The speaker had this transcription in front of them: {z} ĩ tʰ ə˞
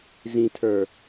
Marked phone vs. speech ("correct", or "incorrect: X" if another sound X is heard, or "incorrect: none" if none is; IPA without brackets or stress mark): correct